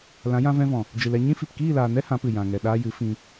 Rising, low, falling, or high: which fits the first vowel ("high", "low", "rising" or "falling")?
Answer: rising